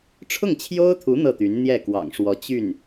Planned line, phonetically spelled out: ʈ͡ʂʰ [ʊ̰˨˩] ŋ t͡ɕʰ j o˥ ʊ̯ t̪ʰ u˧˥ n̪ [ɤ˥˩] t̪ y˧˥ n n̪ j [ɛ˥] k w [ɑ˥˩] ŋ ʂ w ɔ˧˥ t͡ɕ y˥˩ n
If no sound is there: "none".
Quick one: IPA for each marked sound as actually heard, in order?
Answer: ʊ˥˩, ɤ˥˩, ɛ˥˩, ɑ̰˨˩

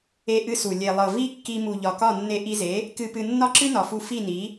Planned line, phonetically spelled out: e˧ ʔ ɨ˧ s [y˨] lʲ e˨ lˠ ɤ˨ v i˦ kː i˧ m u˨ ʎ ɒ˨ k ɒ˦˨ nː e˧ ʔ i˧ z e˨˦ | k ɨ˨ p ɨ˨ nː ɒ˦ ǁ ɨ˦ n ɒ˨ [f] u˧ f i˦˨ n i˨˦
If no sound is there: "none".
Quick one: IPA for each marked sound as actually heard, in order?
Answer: u˨, f

